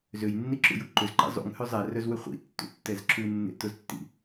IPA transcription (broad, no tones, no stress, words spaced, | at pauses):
zøjnːiǁṵju ǃʏzǃḭ zˤṵŋhø zˤɛrœzwʏ χʷḭtːṵtːɛz ǁunːḛtʊztːḭ